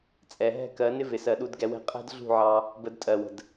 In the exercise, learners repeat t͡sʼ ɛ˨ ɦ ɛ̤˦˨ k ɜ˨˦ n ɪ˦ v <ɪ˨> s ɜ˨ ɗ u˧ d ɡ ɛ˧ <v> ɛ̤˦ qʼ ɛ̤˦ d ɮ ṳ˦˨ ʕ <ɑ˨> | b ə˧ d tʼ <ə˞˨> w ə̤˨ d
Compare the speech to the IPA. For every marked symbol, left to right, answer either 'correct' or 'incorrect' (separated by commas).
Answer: correct, incorrect, incorrect, incorrect